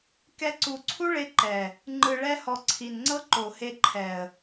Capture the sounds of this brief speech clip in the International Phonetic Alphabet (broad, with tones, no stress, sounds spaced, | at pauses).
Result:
k ɛ˧ ǀ u˨ ǀʰ u˦ ɭ e˧ ǃ ɛ˨ | ŋ͡ǃ ɯ˨ ɭ ɛ˧ h ɔ˨ ǀʰ i˨ n ŋ͡ǀ ɤ˦ ǃ o˨ h e˧ ǃʰ ɛ˨ ə̯